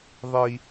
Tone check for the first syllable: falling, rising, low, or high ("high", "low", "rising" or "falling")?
high